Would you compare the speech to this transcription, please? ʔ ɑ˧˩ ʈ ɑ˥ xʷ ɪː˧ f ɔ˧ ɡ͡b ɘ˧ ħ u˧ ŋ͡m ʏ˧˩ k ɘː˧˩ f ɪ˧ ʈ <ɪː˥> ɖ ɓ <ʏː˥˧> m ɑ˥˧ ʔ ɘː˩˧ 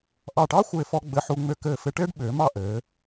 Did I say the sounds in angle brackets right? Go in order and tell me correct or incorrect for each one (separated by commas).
correct, incorrect